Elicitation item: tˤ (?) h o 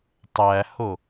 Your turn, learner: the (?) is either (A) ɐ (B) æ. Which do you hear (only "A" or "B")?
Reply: B